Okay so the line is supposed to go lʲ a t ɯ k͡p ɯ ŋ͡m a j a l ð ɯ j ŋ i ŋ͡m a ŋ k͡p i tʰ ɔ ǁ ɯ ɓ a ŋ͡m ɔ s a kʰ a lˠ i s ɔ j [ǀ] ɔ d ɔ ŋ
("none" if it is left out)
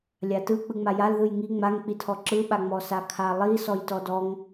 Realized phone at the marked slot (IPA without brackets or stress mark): t